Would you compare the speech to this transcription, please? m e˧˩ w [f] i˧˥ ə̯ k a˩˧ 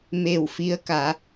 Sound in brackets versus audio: correct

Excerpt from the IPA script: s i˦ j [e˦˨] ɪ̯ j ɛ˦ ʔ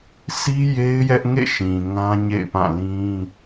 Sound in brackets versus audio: incorrect: e˦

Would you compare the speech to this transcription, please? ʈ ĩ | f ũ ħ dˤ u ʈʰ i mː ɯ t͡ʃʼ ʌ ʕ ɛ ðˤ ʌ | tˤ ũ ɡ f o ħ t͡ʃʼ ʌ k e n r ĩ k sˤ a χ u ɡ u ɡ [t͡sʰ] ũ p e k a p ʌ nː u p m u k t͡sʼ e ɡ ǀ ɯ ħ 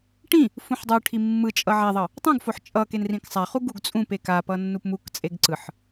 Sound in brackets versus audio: incorrect: t͡sʼ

